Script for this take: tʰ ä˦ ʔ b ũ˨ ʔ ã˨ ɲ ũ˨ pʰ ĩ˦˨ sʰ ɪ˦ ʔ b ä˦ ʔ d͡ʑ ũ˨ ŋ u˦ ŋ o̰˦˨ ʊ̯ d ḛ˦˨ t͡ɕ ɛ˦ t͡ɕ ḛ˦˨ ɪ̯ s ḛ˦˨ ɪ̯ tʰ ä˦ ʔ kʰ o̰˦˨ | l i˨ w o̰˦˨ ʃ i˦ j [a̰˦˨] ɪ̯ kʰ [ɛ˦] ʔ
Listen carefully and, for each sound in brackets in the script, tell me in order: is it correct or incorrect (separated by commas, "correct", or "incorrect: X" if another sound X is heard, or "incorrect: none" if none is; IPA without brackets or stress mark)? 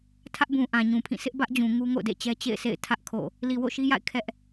correct, correct